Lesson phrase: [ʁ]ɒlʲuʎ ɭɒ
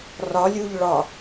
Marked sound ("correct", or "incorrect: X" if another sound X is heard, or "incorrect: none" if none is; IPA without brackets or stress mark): incorrect: r